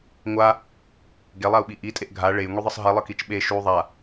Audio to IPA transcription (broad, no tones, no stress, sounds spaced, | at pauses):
ŋʷ a | ɡ e lˠ a u̯ ɓ i ʔ i tʼ e ʔ ɡʱ a ɭ e j ŋʷ i ðˤ ɯ sˤ ɦ i lˠ ɯ k i t͡ʃ ɓ e ʃ u ðˤ a